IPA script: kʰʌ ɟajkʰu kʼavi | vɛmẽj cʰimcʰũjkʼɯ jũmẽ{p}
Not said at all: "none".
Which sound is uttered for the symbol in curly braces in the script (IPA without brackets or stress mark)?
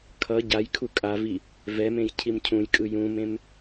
m